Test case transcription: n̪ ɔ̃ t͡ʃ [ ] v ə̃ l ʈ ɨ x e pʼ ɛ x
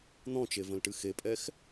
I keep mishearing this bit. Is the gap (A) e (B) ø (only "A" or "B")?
A